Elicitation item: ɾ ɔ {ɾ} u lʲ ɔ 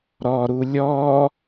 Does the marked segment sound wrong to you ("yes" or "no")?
no